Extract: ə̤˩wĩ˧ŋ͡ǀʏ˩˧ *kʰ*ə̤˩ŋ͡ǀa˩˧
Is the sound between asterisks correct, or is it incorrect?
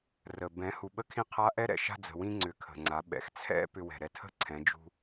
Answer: correct